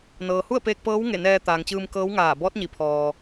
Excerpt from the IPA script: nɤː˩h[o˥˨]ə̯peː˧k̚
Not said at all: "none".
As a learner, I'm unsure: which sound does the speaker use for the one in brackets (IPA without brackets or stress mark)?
u˥˨